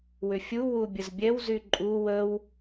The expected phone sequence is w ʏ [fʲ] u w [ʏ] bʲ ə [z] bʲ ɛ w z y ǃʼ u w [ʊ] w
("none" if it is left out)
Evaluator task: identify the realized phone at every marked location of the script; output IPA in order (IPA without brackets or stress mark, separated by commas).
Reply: fʲ, u, z, ə